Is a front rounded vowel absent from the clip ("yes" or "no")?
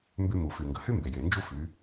no